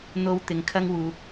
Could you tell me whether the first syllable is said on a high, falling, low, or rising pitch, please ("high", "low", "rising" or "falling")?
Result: high